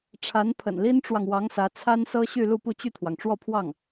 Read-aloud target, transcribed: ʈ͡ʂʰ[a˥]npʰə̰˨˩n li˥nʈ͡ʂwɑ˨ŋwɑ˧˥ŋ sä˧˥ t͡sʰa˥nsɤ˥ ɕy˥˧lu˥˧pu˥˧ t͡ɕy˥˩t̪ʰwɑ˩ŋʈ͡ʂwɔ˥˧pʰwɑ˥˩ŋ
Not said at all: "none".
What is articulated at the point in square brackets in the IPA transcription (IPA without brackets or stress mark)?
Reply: a˧˥